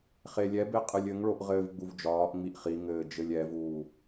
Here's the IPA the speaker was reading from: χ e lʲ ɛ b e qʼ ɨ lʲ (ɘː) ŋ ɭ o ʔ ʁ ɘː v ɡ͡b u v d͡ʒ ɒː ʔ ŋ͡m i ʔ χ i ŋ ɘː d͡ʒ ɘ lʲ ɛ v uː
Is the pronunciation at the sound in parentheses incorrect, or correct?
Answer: incorrect